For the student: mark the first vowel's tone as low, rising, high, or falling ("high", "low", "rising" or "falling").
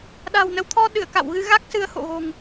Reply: low